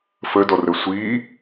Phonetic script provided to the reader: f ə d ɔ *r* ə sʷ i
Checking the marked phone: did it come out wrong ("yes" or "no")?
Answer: no